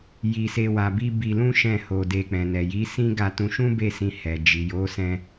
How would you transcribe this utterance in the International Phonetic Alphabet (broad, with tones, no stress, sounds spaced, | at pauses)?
j i˧ s e˧ w a˧ b i˦ b i˧ l ũ˦ ʃ ɛ̃˦˨ h o˧ d e˧ k͡p ɛ̃˨ n ɛ˨ j i˨˦ s ĩ˦ ɡ a˧ t ũ˧ ʃ ũ˦ b e˦˨ s ĩ˧ h ɛ˨ d͡ʒ i˨ j o˨˦ s ɛ̃˧